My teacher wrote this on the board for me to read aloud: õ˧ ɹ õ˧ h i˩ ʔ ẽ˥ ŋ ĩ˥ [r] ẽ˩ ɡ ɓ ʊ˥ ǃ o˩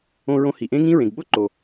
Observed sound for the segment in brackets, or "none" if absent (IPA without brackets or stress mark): ɹ